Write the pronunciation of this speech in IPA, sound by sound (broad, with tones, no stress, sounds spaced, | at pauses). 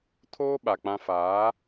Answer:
tʰ oː˦ ɓ a˨ k͡p ã˦ f aː˨˦